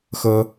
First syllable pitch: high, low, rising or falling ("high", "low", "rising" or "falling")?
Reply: high